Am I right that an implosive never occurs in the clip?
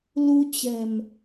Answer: yes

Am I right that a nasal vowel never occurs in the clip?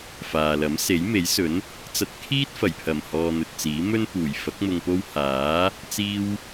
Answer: yes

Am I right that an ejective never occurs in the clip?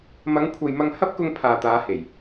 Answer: yes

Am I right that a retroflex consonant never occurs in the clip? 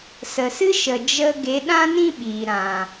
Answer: yes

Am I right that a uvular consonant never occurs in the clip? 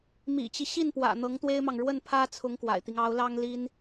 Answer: yes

